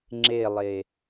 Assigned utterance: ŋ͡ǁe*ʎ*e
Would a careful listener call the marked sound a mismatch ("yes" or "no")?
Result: yes